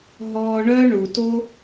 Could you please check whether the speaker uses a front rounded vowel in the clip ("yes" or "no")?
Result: yes